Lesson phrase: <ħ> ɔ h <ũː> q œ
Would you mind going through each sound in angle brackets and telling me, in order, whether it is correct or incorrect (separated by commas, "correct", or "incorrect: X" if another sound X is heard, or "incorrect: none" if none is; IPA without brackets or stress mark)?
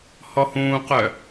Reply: incorrect: h, correct